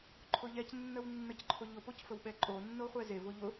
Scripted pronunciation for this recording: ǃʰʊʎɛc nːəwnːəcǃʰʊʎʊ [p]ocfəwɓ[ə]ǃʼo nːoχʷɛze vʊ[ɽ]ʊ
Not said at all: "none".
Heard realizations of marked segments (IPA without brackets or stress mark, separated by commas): p, ɛ, ʎ